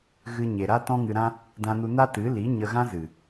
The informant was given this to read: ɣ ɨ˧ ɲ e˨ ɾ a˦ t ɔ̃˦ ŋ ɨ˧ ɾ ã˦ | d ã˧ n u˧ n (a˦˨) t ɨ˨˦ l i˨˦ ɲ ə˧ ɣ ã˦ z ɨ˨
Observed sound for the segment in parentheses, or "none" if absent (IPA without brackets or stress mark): a˦